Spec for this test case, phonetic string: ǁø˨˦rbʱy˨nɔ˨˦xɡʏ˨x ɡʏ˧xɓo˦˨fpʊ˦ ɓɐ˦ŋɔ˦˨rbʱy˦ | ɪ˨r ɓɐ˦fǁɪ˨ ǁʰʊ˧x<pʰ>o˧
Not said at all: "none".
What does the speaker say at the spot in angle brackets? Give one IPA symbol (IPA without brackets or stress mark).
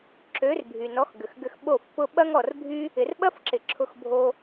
bʱ